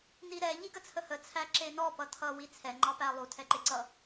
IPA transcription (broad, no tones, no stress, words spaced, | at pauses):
niɾɛ ʎiɡət͡sʰəhə t͡sʰæǁenɔ pʌtʰʌ wit͡sʰɛ ŋ͡ǃɑpælˠu tʰɛǃeǀʌ